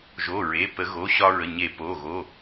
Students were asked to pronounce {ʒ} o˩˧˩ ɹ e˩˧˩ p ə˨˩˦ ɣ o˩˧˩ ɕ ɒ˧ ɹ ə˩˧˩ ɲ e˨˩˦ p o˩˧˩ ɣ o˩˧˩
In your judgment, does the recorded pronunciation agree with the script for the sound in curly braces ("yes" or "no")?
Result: yes